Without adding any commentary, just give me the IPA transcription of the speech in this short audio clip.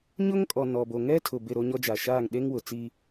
ɲʊ˦ŋkʼɔ˨nɔ˨ bo˨ŋɛ˦tʰʊ˨ bɪ˦˨ɾo˦ɲɔ˦d͡ʒa˨ ʃaː˦˨ŋɗe˦ŋ wʊ˨ t͡si˦

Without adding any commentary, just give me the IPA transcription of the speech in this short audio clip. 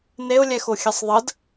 neʊ̯lʲɛxo xʲɛsˤðˤəd

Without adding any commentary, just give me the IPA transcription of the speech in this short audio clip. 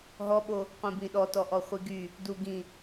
ɦɔɓo | qʷĩbĩɗɔ tɔʔɔχʷiɡy | du ɡĩ

